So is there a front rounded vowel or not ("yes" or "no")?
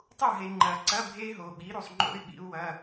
yes